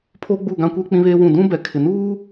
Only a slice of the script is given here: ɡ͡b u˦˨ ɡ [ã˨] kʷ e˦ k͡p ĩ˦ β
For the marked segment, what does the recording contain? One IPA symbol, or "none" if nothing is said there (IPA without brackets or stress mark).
ã˦